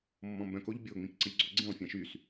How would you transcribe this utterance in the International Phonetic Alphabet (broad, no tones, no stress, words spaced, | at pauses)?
mːɔ̃mbœ̃k oʎbʲo ŋ͡mĩkǀəʎɡ͡ǀoɡ͡ǀĩlˠ fʲãʃys